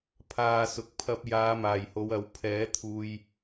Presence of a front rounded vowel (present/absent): absent